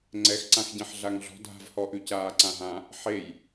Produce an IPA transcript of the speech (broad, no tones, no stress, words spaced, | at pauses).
ŋ͡ǀɛxǀãx ɟẽħɮaŋɮɔ̤ dʱa̤vhɔʔʉ caːǀãɦã | ħej